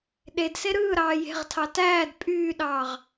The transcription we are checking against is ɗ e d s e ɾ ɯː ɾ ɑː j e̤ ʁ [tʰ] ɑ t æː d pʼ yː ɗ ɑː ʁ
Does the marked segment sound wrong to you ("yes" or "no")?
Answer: no